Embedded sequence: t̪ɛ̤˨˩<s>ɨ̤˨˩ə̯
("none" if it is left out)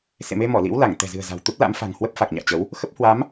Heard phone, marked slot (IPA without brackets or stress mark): z